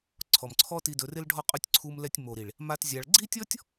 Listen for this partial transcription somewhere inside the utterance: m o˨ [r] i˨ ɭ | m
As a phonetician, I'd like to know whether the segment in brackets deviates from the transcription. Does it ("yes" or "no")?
yes